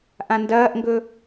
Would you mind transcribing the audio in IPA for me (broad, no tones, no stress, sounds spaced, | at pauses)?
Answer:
ʔ ã n d ɐː ʔ ŋ ɡ ɵ